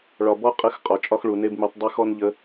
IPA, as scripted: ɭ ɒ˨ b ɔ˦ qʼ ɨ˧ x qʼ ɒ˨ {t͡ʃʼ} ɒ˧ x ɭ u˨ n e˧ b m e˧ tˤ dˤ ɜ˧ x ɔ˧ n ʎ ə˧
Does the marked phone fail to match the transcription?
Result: no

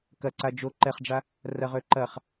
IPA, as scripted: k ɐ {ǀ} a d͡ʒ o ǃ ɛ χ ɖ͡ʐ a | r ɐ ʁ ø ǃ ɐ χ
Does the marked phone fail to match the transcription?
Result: no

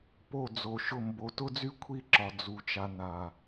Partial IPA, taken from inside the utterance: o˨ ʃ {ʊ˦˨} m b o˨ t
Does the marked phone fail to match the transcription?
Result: no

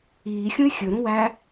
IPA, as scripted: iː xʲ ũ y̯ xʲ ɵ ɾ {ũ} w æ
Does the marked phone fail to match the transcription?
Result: no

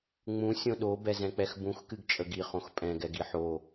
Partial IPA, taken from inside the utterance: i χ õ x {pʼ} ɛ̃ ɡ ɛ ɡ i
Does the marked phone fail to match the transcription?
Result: no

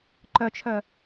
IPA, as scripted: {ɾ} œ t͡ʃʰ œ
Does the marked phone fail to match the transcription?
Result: yes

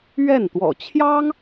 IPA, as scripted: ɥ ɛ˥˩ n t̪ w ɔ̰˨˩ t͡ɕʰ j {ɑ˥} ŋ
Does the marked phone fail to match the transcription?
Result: no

